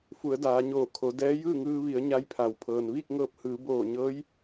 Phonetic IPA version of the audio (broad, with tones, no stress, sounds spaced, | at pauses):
f u˩˧ ə̯ d aː˩˧ ɲ oː˧˩ kʰ o˩˧ d ɛː˧˥ j ɯː˥˨ ŋ ɯː˧ ʋ i˩˧ ə̯ ɲ a˧˥ j pʰ a˩ w pʰ ɤː˩ n ʋ iː˥˨ k̚ ŋ ɤː˧ p̚ h ɯː˩˧ b oː˧˩ ɲ ɤː˧˥ j